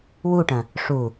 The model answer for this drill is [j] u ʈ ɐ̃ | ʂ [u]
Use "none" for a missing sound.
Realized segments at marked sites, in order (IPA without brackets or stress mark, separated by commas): w, u